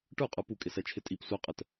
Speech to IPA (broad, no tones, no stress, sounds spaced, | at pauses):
ʈ ə˞ qʼ ə˞ p u kʼ ɪ s ɛ t͡ʃʰ ɪ tʼ i p sʷ ɛ qʼ ə t